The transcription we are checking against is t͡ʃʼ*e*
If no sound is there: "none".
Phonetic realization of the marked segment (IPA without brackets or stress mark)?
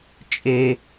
e